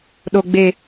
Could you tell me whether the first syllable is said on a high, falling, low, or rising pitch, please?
low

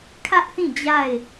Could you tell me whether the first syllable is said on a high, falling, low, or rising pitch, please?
high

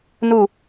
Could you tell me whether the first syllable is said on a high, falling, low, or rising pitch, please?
falling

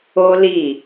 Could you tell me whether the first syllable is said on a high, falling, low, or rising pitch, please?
high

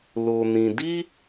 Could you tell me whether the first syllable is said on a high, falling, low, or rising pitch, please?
low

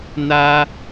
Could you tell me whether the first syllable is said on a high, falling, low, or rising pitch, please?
high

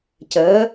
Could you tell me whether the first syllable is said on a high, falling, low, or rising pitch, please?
rising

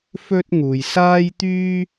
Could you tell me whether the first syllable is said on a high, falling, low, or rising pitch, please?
high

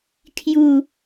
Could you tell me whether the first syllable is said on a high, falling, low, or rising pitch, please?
falling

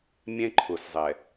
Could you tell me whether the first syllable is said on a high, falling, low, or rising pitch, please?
high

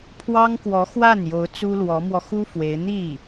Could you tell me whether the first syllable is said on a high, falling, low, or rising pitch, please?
high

